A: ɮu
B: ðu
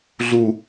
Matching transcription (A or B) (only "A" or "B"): A